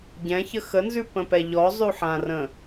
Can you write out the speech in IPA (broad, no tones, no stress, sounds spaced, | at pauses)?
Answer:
ɟ ɛ̃ ç ə x ə n z ʉ p ə̃ p ɛ ʎ ɔ zˤ ʉ ħ ã r ə̃